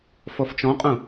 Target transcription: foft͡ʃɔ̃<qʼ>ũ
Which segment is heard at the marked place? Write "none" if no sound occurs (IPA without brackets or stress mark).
qʼ